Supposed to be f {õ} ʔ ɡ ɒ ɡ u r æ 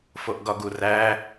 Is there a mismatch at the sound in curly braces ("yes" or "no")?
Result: yes